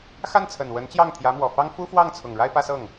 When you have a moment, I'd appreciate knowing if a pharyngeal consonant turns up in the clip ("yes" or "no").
no